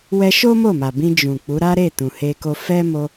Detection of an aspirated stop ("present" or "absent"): absent